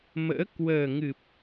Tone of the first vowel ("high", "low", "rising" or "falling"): rising